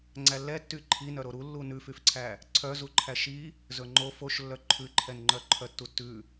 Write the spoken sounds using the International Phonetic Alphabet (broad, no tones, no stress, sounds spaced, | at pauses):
ŋ͡ǀ æ lː ɛ tː y ǃʰ i n œ ɾ o ɾ u lː u n ʉ f y f ǀʰ æ | ǀʰ œ z u ǃʰ æ ʃ i | z ɵ ŋ͡ǃ o f o ʃ lː œ ǃʰ ʉ ǃʰ ɛ n ŋ͡ǃ œ ǃʰ œ tː u tː ʉ